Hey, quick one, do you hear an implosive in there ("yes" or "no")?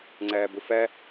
no